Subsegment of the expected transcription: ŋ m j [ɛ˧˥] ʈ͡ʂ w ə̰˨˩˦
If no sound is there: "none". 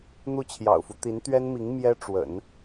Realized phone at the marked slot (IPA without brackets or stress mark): ɛ˥